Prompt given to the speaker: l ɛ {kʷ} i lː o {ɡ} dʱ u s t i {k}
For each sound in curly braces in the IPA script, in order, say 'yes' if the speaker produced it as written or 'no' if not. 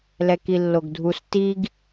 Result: no, yes, no

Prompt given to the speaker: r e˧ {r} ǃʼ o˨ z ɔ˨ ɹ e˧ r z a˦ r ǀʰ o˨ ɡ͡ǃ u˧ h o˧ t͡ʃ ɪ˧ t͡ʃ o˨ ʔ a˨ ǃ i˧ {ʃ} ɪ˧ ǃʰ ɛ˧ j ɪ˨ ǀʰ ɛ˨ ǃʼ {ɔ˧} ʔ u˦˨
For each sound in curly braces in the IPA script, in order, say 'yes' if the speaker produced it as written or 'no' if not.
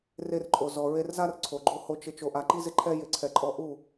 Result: yes, no, yes

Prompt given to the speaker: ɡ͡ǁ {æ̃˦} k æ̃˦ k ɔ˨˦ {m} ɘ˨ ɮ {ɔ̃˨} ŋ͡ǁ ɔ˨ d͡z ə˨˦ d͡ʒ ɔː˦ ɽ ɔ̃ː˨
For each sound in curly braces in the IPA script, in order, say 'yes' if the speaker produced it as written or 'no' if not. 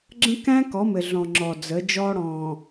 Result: no, yes, yes

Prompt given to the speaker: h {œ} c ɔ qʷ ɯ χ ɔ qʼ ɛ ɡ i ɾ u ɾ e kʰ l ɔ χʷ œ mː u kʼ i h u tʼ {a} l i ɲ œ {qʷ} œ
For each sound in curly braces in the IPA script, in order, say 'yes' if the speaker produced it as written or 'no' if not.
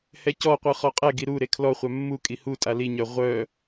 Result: no, yes, no

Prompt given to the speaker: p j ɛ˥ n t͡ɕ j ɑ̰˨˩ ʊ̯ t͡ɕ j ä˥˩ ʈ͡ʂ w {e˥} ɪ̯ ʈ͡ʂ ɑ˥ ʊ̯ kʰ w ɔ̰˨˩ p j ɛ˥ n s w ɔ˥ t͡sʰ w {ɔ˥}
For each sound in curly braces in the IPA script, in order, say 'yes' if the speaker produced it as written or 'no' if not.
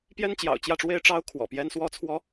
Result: yes, yes

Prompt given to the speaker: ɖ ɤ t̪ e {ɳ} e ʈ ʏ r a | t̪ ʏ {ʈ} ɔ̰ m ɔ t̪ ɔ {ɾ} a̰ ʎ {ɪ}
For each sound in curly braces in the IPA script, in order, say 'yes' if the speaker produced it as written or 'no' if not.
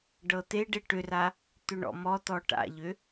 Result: no, no, no, no

